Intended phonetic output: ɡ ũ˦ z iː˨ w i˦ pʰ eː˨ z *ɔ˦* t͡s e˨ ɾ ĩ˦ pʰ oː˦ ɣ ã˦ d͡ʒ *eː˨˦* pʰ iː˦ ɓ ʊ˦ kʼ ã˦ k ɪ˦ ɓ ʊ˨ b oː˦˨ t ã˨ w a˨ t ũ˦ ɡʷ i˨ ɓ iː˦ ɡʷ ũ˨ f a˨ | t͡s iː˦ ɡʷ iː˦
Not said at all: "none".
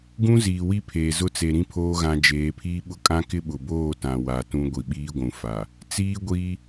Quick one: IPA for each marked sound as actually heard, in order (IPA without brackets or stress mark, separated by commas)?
ʊ˦, eː˨˦